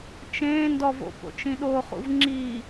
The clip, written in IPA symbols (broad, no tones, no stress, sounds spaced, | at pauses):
t͡ʃ ẽ n d ɔ v o̰ p o̰ t͡ʃ ĩ ɗ o χ ṵ v ŋ͡ǁ i